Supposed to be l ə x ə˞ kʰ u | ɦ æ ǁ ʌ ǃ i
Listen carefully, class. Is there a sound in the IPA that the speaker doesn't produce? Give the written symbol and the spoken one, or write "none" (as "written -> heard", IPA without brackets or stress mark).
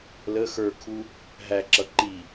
none